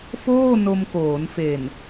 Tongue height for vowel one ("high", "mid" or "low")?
mid